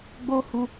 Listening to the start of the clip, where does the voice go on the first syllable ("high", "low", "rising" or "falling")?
high